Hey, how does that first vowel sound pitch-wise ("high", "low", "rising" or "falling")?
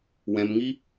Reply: low